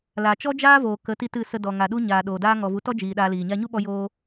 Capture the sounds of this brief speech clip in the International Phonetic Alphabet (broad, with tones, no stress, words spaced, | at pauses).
la˨t͡ʃɔ˦d͡ʒaː˦voː˨ kə˨˦ ti˦tɨ˦˨ sə˧dɔ˨ŋa˨ɗu˦ ɲaː˨ɗoː˨daː˦ ŋɔ˨vu˨˦tɔ˦ d͡ʒiː˧ɗaː˦liː˨ ɲa˧ɲu˦ɓɔ˧ joː˧